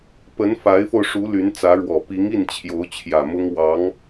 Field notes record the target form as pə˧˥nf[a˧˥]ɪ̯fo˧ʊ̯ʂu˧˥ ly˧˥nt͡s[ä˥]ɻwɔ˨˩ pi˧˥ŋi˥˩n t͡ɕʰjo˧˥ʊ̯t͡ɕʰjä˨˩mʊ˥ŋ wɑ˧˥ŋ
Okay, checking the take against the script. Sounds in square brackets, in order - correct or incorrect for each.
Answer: correct, incorrect: ä˧˥

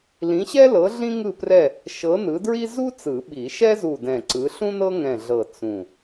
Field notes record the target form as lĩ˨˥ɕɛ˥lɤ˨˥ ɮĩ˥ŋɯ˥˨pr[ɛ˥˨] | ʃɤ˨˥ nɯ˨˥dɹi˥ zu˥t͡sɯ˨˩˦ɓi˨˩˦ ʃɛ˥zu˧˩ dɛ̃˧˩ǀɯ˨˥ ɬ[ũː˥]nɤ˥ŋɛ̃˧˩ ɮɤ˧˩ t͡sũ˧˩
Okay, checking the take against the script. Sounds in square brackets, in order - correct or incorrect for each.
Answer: correct, incorrect: ũ˥

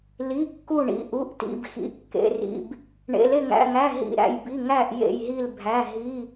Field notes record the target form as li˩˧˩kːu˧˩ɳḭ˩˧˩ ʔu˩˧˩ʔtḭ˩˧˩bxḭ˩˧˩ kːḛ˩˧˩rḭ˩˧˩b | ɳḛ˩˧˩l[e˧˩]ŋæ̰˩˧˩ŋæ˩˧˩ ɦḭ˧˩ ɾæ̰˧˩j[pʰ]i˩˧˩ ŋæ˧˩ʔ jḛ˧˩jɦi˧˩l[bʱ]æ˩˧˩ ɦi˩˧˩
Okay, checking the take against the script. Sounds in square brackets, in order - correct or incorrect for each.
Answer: correct, incorrect: b, correct

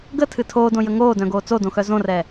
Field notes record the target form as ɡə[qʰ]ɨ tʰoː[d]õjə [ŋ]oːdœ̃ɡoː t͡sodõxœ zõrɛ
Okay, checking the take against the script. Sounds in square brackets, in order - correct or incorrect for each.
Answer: incorrect: tʰ, correct, correct

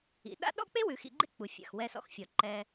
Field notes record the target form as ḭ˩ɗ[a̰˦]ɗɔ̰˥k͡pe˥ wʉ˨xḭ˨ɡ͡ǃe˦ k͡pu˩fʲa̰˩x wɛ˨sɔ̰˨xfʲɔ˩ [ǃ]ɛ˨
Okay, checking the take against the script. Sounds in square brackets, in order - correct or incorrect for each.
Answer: correct, correct

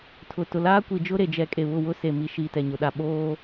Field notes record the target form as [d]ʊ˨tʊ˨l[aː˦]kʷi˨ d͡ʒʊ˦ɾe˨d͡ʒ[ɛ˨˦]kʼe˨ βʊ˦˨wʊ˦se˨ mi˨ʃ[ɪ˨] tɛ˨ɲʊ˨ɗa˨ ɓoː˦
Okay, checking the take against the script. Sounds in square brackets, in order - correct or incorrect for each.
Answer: incorrect: tʰ, correct, correct, incorrect: i˨

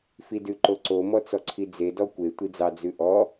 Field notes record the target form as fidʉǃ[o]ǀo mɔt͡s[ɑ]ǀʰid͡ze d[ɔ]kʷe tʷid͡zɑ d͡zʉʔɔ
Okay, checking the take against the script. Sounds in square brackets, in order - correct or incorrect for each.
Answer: correct, incorrect: ɔ, correct

